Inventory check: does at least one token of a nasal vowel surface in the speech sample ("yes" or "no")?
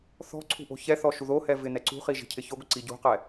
no